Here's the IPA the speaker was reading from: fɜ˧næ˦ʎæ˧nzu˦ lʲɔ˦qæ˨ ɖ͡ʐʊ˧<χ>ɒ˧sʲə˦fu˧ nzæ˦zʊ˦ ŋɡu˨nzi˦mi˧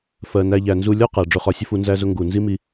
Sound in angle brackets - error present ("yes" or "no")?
no